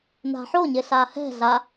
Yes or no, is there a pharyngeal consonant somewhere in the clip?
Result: yes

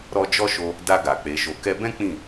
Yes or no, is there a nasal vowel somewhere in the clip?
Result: yes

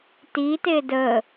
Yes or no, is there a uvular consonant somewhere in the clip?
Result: no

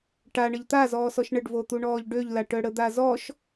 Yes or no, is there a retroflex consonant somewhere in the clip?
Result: yes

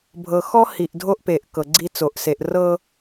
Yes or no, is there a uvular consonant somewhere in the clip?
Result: no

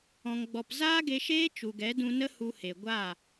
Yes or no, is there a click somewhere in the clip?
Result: no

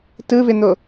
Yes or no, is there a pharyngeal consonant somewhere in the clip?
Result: no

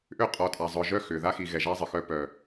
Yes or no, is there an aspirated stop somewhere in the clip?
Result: no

